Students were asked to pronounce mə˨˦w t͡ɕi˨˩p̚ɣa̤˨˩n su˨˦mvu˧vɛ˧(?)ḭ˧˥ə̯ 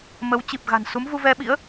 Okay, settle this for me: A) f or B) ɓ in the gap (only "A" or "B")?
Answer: B